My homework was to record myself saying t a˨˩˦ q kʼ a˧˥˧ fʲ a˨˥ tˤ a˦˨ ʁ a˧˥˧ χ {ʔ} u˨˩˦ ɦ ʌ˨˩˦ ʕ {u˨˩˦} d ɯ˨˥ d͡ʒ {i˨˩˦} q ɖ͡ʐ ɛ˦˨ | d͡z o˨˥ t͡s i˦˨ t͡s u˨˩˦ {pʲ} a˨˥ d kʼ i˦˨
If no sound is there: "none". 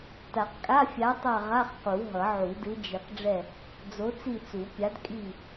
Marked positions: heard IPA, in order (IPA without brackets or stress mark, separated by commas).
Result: q, u˨˩˦, i˨˩˦, pʲ